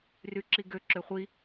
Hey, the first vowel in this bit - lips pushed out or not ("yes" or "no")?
yes